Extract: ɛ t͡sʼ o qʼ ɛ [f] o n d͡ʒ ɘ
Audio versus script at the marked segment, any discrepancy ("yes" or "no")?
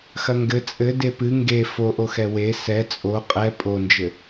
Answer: yes